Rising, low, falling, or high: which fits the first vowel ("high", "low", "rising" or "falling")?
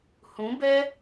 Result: rising